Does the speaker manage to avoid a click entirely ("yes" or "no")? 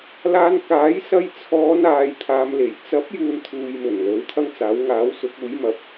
yes